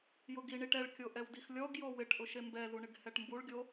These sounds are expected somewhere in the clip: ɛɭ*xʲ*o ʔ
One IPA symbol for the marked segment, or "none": kʲ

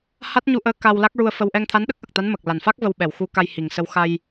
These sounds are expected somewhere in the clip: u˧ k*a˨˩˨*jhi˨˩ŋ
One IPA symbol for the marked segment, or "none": a˧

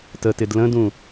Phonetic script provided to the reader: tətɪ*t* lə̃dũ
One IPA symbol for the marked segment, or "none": d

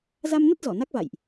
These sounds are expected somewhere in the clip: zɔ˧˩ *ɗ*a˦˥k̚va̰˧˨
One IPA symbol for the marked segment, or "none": n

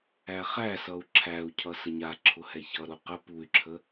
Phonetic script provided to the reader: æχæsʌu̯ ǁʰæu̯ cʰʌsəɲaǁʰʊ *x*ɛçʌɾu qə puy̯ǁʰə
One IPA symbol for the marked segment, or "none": h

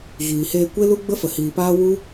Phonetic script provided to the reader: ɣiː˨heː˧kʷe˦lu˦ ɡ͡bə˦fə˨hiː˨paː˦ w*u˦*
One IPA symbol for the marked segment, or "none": u˦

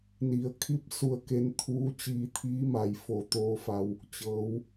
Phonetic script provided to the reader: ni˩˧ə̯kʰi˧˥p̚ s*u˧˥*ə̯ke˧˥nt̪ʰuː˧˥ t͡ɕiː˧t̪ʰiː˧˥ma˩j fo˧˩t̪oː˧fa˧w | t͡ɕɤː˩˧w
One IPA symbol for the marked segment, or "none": u˧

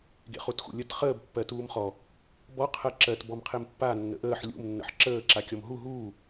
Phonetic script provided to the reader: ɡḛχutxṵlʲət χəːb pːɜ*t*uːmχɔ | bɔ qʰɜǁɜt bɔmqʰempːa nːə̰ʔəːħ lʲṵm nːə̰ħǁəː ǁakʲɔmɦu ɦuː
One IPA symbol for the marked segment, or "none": t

